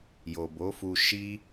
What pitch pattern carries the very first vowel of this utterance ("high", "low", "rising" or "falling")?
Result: low